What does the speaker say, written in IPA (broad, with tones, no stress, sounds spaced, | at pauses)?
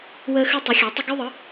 w əː˦ x ʉ˦ tˤ ʉ˩˥ xʲ a˩˥ tˤ ə˦ ɡ ʉ˦ ðˤ ɯ˩˥